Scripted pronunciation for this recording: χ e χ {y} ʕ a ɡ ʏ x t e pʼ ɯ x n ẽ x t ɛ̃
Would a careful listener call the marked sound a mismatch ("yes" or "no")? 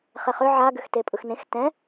yes